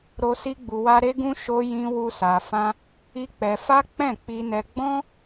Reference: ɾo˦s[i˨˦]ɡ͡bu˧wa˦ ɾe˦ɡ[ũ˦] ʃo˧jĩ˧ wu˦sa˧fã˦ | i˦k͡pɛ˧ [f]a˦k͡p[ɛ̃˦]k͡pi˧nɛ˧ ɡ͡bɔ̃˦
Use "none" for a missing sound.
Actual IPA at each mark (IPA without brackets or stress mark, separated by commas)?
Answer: i˦, ũ˦, f, ɛ̃˦˨